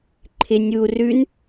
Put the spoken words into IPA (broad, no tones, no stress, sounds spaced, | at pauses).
ǃʰ ɪ nʲ u r ʉ n